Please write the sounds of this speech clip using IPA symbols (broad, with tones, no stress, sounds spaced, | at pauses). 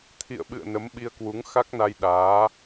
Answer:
t̪ʰ ḭ˧˨ ə̯ ɓ ɨ̰˧˨ ə̯ n ə˨˦ m ɓ i˧ ə̯ k w u˨˦ ŋ x a˦˥ k̚ n a˧ j ɗ aː˨˦